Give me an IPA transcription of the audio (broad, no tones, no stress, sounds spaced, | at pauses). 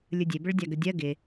lʲ ɯ dʲ e b ə ɭ dʲ a ɡ ə dʲ ɜ ɡ ɪ